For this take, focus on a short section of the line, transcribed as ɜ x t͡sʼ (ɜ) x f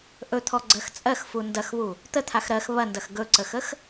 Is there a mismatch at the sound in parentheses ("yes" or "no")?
no